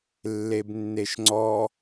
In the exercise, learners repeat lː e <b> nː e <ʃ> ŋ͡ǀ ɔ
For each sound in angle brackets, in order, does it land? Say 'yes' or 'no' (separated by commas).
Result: yes, yes